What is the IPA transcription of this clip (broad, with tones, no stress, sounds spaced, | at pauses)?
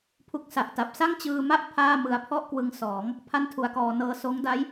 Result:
pʰ u˦˥ k̚ s a˨˩ ʔ t a˨˩ p̚ s a˥˩ ŋ t͡ɕ ɯː˧ m a˥˩ ʔ pʰ aː˥˩ m ɯ˧ a̯ pʰ ɔ˥˩ ʔ k w ɯ˧ ŋ s ɔː˩˦ ŋ | pʰ a˥˩ n tʰ u˧ a̯ k ɔː˧ n ɤː˧ s oː˦˥ ŋ d a˦˥ j